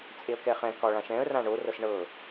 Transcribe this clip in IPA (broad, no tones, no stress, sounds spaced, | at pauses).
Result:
t͡sʼ e ə̯ k ɛ χ ɛ̃ k ɒ ɭ ã ʃ ɛ̃ ə̯ r ã ɳ o r ɤ s ɳ ɤ